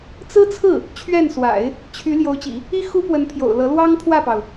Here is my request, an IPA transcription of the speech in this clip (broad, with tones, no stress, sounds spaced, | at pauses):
t͡s ɹ̩˥ t͡sʰ ɹ̩˥˩ | t͡ɕʰ ɥ ɛ˥˩ n s w a̰˨˩˦ ɪ̯ | t͡ɕʰ y˧˥ l j o˧˥ ʊ̯ t͡ɕ ḭ˨˩˦ | i˥ x u˥ p w ə˧˥ n pʰ j o̰˨˩ ʊ̯ l ɤ˧˥ l w ɑ˥ ŋ pʰ w ä˥˩ p ɑ˩ ʊ̯